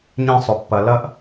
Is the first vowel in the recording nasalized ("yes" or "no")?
yes